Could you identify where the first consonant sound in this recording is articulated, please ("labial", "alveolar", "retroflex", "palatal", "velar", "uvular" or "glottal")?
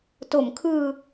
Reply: alveolar